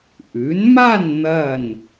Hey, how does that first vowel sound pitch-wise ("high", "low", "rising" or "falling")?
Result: rising